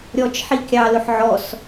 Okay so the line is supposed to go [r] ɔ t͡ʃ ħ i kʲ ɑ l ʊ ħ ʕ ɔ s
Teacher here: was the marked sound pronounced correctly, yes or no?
no